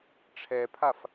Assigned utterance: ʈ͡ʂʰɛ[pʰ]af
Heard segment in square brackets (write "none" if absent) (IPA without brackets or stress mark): pʰ